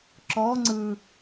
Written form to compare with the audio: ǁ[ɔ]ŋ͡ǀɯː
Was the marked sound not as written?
no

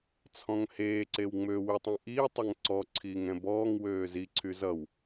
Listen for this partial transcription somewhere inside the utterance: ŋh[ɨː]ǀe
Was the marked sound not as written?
yes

